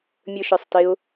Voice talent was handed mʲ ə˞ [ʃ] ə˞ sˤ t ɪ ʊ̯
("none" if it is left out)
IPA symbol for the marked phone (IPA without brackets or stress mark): ʃ